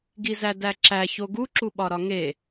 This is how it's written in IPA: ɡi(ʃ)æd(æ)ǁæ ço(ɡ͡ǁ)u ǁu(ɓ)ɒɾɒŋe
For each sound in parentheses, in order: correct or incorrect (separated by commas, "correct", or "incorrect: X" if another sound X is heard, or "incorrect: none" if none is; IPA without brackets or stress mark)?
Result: incorrect: z, correct, incorrect: ɡ, correct